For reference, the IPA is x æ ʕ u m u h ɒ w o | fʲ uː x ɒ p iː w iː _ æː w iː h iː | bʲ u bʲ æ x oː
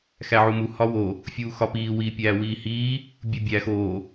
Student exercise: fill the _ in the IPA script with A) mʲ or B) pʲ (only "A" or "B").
B